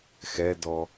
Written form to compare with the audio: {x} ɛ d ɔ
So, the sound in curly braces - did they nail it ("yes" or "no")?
yes